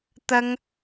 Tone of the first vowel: high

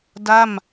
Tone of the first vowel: falling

